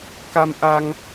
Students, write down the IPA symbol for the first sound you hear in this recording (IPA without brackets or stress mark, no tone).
k